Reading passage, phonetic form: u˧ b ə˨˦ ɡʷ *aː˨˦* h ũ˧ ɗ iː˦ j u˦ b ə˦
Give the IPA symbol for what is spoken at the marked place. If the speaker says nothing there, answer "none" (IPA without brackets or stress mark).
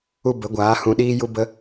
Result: aː˨˦